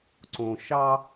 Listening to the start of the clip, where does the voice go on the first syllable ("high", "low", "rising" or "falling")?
low